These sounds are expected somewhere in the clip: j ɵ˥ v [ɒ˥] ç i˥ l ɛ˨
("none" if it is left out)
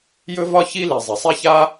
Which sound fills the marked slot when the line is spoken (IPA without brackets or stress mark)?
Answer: ɒ˥